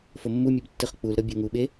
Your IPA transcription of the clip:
f o mː u mʲ ɛ b tː ɯ χ k͡p u l ɾ ɤ bʲ o ŋ u ɓ e

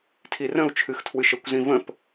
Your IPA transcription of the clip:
tʰ i r ə̃ u̯ t͡ʃʰ ɨ x tʰ w ɨ ʃ ə kʷ z ĩ v ə̃ p

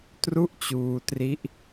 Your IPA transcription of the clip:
t r u˥˩ ʔ t͡ɕ uː˧ t r i˦˥ ʔ

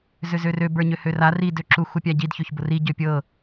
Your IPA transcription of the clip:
z ø z ø r ø b ə˞ ɲ ø h ø r a r i d ø ǁ u x u pʲ a ɟ i d ç ø ç b ʊ r i ɟ ø pʲ ɤ

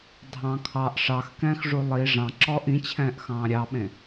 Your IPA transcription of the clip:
dʱ ɑ̃ kʰ ɑ ʔ ʂ ɑ x k ɛ̃ː x ʐ u lˠ i ʐ ɑ̃ ǁ ɔː ʔ ĩ t͡ɕʰ ɛ̃ː ʔ x ɑ̃ː ɾʲ ɑ ɓ ẽ

